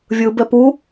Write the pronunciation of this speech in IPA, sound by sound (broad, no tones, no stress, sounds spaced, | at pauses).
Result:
vʲ ɯ b ɛ p u